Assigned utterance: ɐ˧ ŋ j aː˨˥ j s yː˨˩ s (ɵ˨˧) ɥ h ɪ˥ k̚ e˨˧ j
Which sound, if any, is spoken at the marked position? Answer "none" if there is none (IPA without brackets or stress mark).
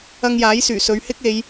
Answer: ɵ˨˧